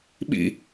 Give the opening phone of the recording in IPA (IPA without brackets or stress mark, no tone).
ɓ